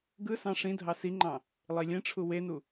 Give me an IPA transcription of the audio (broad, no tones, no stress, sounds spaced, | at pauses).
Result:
ɡ ɯ s ɑ̃ ʂ ĩ dʱ ɑ s i ŋ͡ǃ ɑ̃ | lˠ i lʲ ẽ ʈ͡ʂʰ u w e n u